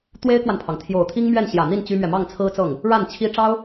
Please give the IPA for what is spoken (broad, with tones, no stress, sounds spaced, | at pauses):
t̪ w e˥ ɪ̯ k w a˨ n pʰ ɑ˩ ŋ t̪ʰ j o˨˩ ʊ̯ t̪ʰ i˥ ŋ m ɥ ɛ˥˩ n ɕ j ä˨˩ n̪ i˥˩ n t͡ɕ y˥ m ɥ ɛ˨ m ɑ˥˩ ŋ t͡sʰ ɹ̩˥ t͡s ɤ˥˩ ŋ | ɻ a˥˩ n t͡ɕʰ i˥ ʈ͡ʂ ɑ˥ ʊ̯